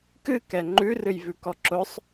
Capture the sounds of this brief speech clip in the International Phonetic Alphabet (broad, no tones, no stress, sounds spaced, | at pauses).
k ɨ k ɛ ŋ͡ǃ ʉ r ɨ j v ʉ k ɔ ǁ ʊ sˤ